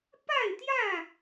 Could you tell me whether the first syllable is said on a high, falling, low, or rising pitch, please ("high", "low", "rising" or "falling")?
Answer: falling